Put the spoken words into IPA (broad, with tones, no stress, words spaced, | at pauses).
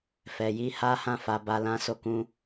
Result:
fɛ˨ji˨˦ ha˦hã˦˨ fa˨ba˨lã˨˦ so˧kũ˧